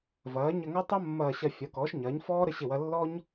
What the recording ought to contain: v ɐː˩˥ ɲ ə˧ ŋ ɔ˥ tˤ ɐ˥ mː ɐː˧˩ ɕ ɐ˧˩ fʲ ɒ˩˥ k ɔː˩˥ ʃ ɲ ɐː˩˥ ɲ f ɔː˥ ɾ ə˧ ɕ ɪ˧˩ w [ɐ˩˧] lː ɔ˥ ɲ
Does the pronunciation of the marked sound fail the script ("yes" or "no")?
yes